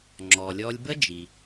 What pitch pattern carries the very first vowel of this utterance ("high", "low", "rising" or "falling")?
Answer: low